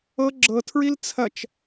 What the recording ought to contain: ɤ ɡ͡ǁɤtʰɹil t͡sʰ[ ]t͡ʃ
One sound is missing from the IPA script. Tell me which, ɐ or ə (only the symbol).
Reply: ɐ